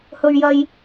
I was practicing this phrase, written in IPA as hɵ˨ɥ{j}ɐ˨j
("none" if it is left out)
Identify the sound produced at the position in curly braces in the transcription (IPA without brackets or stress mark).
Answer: j